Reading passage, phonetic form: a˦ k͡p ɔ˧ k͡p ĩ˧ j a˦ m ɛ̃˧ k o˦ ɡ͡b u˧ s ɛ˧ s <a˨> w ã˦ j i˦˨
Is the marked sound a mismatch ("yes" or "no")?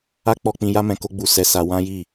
yes